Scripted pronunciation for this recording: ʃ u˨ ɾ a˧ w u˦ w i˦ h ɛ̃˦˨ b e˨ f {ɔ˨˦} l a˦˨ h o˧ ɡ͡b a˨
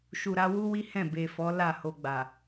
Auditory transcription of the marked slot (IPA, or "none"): ɔ˨˦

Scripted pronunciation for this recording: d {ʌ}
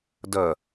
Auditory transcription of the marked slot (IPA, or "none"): ʌ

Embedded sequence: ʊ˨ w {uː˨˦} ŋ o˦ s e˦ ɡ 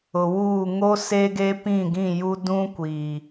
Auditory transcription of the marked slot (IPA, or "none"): uː˦˨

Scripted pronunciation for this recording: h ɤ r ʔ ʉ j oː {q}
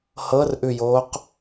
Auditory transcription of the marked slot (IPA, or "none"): q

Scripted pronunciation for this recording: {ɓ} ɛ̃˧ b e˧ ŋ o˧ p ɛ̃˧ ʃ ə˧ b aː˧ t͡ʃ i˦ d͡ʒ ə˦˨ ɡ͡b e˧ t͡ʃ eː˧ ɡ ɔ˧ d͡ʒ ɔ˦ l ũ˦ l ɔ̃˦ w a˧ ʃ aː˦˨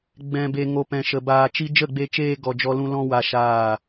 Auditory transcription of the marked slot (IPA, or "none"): ɡ͡b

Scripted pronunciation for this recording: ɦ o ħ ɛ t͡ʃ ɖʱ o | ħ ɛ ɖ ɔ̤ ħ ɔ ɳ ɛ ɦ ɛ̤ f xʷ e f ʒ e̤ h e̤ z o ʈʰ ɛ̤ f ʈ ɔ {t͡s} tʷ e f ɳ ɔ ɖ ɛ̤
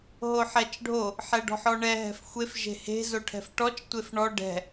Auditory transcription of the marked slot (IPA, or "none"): t͡ʃ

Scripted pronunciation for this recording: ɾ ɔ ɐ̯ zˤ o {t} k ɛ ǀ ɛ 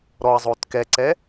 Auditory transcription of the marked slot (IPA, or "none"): t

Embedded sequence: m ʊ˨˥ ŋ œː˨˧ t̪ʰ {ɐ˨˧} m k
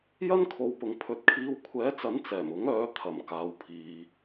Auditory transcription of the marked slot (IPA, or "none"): ɐ˨˩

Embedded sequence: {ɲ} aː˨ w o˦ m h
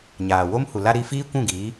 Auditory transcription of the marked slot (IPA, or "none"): ɲ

